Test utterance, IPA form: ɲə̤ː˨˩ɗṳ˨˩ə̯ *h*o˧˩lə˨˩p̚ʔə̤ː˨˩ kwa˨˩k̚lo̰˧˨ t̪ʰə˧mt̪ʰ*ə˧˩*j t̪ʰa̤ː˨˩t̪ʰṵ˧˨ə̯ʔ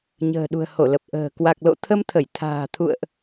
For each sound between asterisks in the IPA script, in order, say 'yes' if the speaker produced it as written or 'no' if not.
yes, yes

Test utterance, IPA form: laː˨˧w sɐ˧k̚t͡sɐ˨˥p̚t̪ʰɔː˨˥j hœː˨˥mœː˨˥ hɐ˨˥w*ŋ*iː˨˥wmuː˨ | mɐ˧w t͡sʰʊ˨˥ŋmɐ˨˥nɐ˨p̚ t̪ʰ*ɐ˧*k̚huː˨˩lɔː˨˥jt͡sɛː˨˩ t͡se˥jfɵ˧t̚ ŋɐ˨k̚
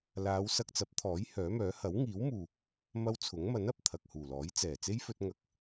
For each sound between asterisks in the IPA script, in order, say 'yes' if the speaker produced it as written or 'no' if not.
yes, no

